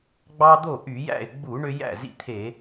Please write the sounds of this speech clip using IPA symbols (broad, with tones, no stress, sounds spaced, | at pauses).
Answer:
ɡ͡b ɑ˦ d̪ o˥˩ ʔ y˧˩˧ j æ̰˥˩ ɪ̯ ɡ͡b u˧˩˧ ɳ ø˦ j æ̰˥˩ z ḭ˦ t̪ʰ e˧˩˧